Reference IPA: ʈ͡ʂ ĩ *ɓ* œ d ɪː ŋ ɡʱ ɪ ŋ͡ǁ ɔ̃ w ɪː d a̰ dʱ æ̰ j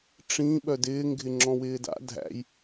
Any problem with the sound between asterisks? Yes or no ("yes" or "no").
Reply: no